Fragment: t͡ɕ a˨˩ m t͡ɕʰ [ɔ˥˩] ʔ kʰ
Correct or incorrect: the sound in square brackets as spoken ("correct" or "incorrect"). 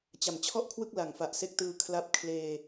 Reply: correct